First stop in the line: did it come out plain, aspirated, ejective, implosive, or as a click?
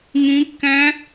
plain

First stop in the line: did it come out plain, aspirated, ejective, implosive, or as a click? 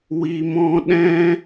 implosive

